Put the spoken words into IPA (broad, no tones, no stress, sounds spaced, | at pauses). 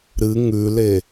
ɾ ɨ ŋ ʉ l e